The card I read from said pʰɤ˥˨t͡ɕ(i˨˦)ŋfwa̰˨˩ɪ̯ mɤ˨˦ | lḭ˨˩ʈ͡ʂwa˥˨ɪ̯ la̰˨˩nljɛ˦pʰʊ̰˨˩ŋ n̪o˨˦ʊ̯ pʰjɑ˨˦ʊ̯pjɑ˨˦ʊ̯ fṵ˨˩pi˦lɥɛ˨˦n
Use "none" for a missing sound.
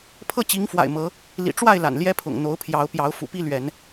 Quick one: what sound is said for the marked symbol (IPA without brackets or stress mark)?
i˨˦